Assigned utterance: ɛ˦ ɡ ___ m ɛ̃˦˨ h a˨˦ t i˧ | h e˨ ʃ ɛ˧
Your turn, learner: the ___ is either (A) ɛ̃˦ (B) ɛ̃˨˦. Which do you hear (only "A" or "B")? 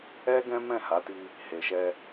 A